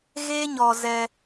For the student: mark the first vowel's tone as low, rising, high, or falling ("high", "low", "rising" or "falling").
high